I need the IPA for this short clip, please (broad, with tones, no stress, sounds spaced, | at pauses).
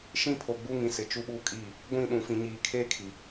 ʃ ĩ˦ pʰ o˨ ɡ͡b u˦ ŋ ĩ˨ s ɪ˨ t͡ʃ u˦ ɓ uː˦ kʼ iː˦˨ | ɡʷ ĩ˦˨ ɗ ũ˨ f ĩ˨ ɲ iː˨ kʰ eː˦ kʰ i˨